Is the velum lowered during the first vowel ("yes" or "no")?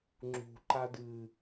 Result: no